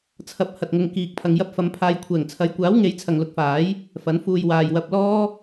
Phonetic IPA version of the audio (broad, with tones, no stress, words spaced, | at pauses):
t͡sʰɐ˨˥p̚ hɐ˨t̚ŋʊ˨˧ŋ kiː˨k̚ pʰɐ˨ŋjɐ˧p̚fɐ˨˧m pʰaː˨jkʷʰɛː˨˩ŋt͡sʰɐ˨˧jkʷaː˨˥w ŋe˨˥jt͡sʰɐ˨ŋlʊ˨˥k̚faː˨˥j | fɐ˨˥nfuː˧j waː˨jwɐ˧p̚lɔː˥